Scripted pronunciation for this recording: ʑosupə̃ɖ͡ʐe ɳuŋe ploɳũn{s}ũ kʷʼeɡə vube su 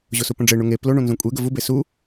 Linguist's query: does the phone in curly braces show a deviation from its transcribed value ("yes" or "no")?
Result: yes